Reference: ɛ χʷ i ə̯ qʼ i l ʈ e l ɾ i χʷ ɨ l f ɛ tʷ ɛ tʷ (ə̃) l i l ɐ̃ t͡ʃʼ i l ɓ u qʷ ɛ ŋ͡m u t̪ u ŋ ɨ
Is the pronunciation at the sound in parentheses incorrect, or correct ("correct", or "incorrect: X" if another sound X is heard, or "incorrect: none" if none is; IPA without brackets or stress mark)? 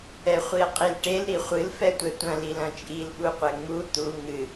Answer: incorrect: ɐ̃